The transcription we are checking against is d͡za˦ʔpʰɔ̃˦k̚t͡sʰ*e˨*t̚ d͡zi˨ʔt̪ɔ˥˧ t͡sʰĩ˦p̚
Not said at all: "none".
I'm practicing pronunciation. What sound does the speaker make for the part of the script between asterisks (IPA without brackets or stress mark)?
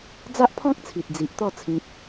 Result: i˨